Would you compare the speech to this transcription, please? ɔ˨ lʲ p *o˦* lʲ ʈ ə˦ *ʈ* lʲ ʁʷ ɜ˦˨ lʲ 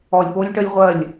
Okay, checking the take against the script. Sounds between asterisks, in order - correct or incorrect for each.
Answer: correct, incorrect

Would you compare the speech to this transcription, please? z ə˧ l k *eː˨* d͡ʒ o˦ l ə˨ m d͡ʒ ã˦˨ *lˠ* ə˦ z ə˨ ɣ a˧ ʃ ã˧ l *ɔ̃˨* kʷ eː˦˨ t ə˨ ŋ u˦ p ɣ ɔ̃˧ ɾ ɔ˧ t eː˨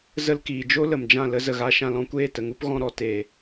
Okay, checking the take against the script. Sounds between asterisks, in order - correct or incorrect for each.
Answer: incorrect, incorrect, incorrect

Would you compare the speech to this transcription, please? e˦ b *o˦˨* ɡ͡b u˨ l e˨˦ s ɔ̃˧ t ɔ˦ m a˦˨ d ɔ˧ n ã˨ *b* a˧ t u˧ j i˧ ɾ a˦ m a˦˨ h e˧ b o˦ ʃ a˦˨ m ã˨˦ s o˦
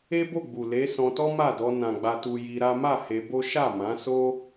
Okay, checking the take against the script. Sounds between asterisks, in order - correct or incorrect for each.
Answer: correct, incorrect

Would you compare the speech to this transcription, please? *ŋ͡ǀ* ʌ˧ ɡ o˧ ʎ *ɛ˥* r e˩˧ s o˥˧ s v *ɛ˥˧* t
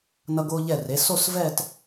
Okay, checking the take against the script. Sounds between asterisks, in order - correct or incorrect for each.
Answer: incorrect, incorrect, correct

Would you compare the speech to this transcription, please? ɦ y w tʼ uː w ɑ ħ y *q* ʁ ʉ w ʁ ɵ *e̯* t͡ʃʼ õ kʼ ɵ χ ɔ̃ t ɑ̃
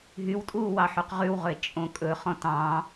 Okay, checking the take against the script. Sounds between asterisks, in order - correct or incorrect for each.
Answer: correct, correct

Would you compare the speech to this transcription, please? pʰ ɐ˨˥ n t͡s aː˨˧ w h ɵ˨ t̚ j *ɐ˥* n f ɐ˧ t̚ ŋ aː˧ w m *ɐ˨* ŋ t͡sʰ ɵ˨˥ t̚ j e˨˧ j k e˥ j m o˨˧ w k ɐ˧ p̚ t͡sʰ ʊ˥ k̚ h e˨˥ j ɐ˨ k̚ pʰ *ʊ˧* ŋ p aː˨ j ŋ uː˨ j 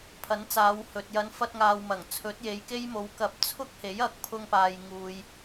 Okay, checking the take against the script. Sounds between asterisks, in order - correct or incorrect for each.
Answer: incorrect, incorrect, correct

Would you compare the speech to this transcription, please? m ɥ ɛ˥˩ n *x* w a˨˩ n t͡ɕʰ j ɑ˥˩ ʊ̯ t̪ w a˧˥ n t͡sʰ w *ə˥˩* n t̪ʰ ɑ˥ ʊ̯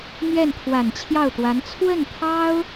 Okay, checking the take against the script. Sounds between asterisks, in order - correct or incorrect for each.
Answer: incorrect, correct

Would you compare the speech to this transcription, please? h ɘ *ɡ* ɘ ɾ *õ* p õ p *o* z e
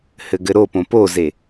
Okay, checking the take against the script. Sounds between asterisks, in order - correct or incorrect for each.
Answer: correct, incorrect, correct

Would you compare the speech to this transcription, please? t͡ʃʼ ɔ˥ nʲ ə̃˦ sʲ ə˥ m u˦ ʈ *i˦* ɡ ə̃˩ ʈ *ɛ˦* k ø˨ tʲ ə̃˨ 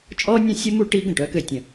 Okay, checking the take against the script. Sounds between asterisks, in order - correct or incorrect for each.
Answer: correct, incorrect

